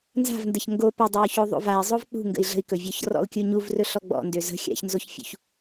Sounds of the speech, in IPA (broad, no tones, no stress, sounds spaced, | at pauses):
n z a̤ v n d ə ç ŋ ɡ o p ʏ dˤ o u̯ ç o ðˤ o̰ v a i̯ zˤ o v k͡p ṳ ŋ ɡ ə̰ i̯ ɮ ə̤ i̯ k ɵ vʲ ɔ ç r ɔ̰ u̯ kʲ u ɲ u v r ɵ ɬ ɔ ɡ͡b ɔ̰ n d ø z ə̤ xʲ a̰ ç n z o ç fʲ ṵ ç